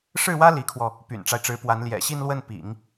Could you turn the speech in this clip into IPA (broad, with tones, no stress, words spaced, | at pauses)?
ʂɻ̩˥˩wä˥ li˧˥kʰwɔ˧ | py̰˨˩nʈ͡ʂa˦ɪ̯ʈ͡ʂɻ̩˧˥pwa˧˥n ljɛ̰˨˩ɕi˥˧nlwə˥˩n pḭ˨˩˦ŋ